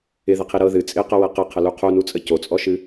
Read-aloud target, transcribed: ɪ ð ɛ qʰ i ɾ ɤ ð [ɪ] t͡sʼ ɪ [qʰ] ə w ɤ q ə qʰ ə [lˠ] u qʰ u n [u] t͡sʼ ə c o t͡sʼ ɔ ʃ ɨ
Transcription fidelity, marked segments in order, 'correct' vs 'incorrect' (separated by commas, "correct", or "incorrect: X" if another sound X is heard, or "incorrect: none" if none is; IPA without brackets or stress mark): incorrect: ɨ, incorrect: q, incorrect: l, correct